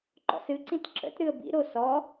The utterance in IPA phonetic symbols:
ǃ ɔ̰ s ɨ ǀ ĩ t ǁ ə̰ t ɾ ɨ ə̯ b ḭ ɾ o s ɔ

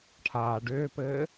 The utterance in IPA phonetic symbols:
ʈʰ aː ɖ ʏː p ɘː

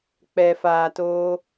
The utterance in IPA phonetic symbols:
k͡p ɛ˨ f aː˨ t oː˧

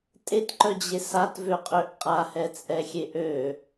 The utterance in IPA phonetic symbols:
tʼ e t ǃ œ d͡ʑ e s a t v ø qʼ ø ʔ qʼ a h ɛ t͡sʼ ɛ xʲ e ʔ ø

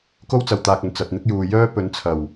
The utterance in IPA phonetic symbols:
k o˥ w t͡s ɐ˨ w t̪ aː˨ k̚ ɵ˨˩ n t͡s ɐ˨ t̚ n̪ ɪ˥ k̚ j uː˨ j œː˥ p ɵ˨˥ n t͡sʰ ɐ˨˩ w

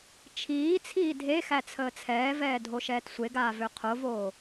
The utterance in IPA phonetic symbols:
t͡ʃʰ iː t͡sʰ iː dʱ e x æ t͡sʰ əː t͡sʰ ɛː v ɛː dʱ o ʃ ɛː t sʷ e ɡ aː v ø qʰ o v oː

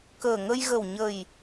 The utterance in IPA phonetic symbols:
k əː˨˩ ŋ ə˧ j ɣ ə˨˩ w ɲ ə˨˩ j

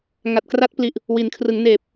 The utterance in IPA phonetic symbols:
ŋ a˨˩ t̚ k r a˦˥ t̚ p l i˨˩ ʔ | w i˩˦ n kʰ r ɯ˩˦ ŋ n eː˨˩ p̚

